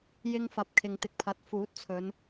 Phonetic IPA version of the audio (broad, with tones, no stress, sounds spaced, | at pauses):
j ɪ˧ ŋ f ɐ˨ p̚ kʰ ɪ˨ ŋ t̪ ɪ˨˥ k̚ pʰ ɐ˨ t̚ f uː˨˥ t̚ t͡sʰ ɵ˨˧ n